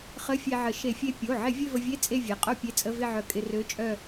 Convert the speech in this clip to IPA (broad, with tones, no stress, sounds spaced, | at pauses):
χ ə˧˥˧ fʲ e˧ ʕ ə˧˩˧ ʃ e˧˩˧ fʲ e˧ pʲ o˩˧˩ ʕ ɪ˧˩˧ vʲ ø˥˨ v ə˧ vʲ e˧˥˧ t͡sʼ e˥˨ vʲ e˩˧˩ qʼ o˥˨ pʲ e˧˥˧ t͡sʼ ə˧˥˧ v ɪ˥˨ ʕ œ˧ kʼ ɪ˧ r ø˧˥˧ t͡ʃʼ œ˥˨